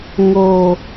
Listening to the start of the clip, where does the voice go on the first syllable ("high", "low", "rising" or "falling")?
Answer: low